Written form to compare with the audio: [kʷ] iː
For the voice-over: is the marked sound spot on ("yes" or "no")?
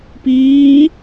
no